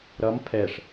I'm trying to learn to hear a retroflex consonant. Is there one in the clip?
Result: yes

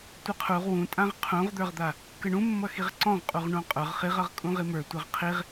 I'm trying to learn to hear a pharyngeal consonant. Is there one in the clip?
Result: no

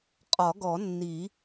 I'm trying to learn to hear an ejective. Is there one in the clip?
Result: yes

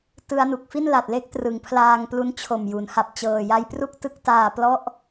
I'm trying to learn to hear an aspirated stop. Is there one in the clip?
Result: yes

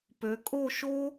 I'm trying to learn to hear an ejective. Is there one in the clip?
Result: yes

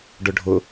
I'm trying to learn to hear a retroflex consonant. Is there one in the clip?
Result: yes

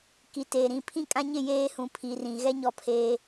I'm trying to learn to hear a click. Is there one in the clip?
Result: no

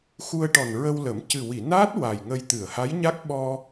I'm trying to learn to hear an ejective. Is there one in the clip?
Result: no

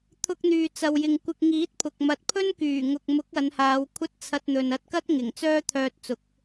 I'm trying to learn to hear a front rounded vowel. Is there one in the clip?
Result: yes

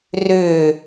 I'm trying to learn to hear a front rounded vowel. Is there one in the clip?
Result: yes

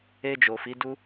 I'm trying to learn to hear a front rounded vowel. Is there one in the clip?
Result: no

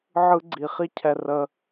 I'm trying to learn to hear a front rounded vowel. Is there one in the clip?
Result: no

